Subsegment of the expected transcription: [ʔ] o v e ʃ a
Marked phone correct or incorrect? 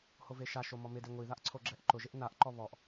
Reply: incorrect: h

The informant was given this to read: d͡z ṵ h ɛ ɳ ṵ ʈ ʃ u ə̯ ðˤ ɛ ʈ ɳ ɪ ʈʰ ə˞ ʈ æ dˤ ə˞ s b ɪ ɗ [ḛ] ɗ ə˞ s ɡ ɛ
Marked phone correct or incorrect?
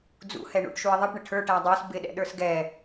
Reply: incorrect: ɛ̰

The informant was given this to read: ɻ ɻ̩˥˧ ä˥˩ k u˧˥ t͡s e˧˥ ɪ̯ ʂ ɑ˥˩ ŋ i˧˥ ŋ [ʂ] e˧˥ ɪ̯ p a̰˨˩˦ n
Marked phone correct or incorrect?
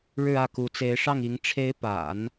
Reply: incorrect: ʈ͡ʂʰ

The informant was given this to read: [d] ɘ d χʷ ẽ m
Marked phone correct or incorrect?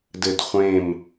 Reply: correct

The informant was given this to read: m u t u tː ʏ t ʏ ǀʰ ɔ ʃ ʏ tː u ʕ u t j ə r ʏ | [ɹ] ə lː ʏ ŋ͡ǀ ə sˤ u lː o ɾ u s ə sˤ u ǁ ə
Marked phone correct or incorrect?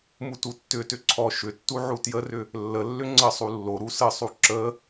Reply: incorrect: lː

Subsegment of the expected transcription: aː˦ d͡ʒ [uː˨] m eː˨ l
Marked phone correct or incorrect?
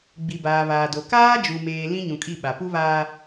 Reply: incorrect: u˨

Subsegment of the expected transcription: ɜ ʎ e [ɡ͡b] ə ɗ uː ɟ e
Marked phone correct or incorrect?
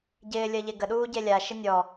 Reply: incorrect: ɡ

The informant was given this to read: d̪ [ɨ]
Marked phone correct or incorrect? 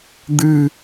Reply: correct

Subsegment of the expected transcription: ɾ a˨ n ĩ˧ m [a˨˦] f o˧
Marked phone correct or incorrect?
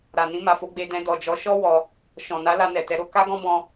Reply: incorrect: a˨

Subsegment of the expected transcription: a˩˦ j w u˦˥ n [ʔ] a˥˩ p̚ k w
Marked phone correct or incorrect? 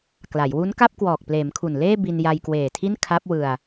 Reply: incorrect: k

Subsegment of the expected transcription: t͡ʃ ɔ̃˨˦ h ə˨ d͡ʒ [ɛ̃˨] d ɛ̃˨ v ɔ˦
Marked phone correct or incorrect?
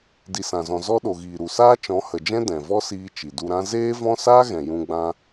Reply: incorrect: ɛ̃˦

